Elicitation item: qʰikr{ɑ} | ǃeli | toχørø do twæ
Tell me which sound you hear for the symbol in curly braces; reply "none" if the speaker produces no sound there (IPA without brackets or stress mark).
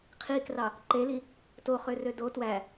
ɑ